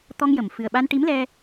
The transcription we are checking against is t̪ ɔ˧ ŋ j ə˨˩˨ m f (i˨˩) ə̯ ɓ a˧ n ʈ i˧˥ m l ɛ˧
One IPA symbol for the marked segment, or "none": ɨ˨˩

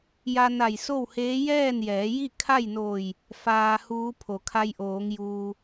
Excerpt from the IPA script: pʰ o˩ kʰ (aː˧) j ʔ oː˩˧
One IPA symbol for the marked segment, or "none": a˧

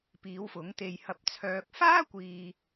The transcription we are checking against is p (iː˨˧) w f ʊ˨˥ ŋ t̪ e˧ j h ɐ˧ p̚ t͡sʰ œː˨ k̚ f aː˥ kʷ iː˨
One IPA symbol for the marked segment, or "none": iː˨˧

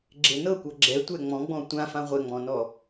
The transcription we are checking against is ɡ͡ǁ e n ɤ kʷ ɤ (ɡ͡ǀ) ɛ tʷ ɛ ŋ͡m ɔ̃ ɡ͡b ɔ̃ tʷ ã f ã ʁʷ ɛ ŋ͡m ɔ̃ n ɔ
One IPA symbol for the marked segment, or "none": ɡ͡ǁ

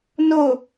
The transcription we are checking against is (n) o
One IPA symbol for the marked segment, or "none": n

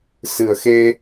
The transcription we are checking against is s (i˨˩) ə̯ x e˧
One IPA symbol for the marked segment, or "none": ɨ˨˩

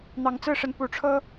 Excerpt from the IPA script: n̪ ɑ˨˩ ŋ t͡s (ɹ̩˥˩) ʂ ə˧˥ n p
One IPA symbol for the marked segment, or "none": ɹ̩˥˩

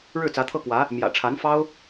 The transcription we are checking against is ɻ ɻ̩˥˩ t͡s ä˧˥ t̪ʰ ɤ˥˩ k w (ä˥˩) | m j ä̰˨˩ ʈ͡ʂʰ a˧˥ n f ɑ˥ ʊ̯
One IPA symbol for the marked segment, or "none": ä˧˥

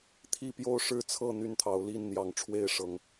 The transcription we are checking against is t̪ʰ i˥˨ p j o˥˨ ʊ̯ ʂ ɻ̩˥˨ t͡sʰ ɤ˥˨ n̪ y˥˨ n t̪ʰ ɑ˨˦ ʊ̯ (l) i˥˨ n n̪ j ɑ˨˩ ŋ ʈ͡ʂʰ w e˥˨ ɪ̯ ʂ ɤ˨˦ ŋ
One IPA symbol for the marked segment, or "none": l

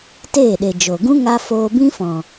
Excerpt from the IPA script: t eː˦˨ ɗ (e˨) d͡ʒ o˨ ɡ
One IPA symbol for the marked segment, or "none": e˨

